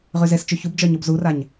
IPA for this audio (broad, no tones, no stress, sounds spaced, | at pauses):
ʁ y z e s t͡ʃ y ç u b d͡ʒ œ ɲ o b z u r a ɲ